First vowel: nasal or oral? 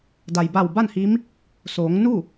oral